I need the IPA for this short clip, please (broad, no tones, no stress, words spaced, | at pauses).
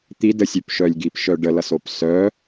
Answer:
t̪idəsʲøpʃœlʲ ɡipʃœ ɖəlʌsop sœ